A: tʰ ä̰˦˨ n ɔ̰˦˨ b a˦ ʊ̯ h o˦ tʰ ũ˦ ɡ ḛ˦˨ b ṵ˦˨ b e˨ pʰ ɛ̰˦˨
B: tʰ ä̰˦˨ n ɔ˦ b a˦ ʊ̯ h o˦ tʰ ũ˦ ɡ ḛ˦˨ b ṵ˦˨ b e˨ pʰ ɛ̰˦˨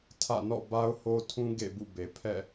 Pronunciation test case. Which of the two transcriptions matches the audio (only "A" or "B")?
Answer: A